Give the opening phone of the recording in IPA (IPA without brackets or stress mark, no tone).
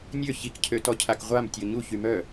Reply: nʲ